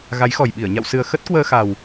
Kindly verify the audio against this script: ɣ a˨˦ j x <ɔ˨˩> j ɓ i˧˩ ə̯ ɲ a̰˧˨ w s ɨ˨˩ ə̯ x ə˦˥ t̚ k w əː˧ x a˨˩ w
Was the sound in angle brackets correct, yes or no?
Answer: yes